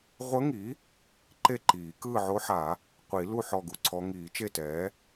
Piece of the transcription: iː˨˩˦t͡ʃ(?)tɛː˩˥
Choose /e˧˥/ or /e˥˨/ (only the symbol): e˥˨